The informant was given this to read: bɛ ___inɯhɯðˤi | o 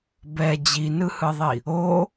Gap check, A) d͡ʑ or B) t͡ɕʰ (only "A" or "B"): A